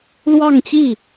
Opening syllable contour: falling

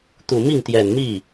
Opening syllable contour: low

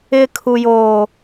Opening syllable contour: high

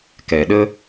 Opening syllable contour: low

